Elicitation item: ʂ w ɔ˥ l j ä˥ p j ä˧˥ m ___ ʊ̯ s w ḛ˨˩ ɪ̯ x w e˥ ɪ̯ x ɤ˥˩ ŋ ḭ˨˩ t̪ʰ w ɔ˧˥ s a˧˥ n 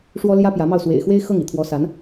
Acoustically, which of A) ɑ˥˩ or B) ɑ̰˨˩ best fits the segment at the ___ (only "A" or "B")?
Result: A